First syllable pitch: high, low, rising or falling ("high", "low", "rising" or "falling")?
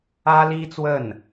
high